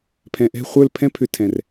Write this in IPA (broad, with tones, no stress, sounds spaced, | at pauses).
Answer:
pʰ ɛ̃˨ ʔ ɛ̤˦˨ χʷ ə˞˦˨ l pʰ ɛ̃˦ pʰ ʏ˧ tʰ ɛ̃˨ r